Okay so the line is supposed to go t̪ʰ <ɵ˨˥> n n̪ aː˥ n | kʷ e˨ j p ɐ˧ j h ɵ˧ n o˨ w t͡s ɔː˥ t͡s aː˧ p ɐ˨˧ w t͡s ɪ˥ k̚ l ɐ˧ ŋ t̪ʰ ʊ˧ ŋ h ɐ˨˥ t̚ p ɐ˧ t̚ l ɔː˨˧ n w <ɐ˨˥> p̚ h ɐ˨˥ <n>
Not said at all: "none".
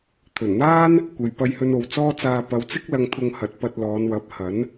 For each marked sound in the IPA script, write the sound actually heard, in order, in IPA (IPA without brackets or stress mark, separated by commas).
ɵ˨˩, ɐ˨˥, n